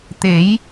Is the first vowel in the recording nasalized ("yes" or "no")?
no